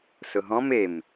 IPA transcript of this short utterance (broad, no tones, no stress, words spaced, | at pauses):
sʊɦɔ̃m em